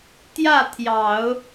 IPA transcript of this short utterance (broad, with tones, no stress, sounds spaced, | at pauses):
t̪ j ä˥˩ t̪ʰ j ɑ˨˩˦ ʊ̯